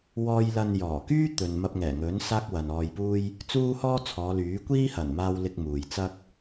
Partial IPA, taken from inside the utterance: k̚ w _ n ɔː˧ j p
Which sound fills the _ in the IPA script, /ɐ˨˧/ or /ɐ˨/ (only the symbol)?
ɐ˨